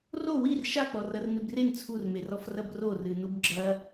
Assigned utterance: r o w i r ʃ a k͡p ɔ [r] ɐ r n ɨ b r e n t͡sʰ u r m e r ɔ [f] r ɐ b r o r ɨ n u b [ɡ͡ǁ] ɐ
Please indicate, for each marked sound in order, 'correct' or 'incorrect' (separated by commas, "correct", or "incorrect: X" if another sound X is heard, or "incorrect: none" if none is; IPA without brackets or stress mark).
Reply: correct, correct, correct